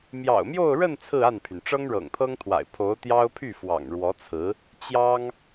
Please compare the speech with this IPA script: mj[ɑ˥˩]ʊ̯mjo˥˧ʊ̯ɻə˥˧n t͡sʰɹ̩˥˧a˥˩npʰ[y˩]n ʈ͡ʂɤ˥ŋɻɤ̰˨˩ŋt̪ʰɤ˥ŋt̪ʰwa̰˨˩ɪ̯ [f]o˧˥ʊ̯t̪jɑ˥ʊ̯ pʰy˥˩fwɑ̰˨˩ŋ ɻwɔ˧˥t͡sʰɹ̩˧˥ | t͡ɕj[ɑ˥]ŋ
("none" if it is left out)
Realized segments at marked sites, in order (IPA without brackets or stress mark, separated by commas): ɑ̰˨˩, y˩, pʰ, ɑ˥